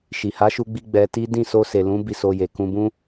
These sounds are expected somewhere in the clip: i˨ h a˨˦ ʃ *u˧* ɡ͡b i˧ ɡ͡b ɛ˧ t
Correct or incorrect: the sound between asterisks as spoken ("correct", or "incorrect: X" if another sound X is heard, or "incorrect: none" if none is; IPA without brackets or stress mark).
correct